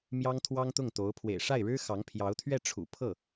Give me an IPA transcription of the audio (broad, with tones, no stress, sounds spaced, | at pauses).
m j ɑ˥ ŋ t̪ʰ w ɑ˥ ŋ t̪ ʊ˥˩ ŋ t̪ o˧˥ ʊ̯ pʰ w ḛ˨˩ ɪ̯ ʂ a˥˩ ɪ̯ ɻ ɻ̩˥ x ɑ˧˥ ŋ pʰ j ɑ˧˥ ʊ̯ t̪ʰ ɥ ɛ˥˩ ʈ͡ʂʰ ṵ˨˩ pʰ ɤ˥˩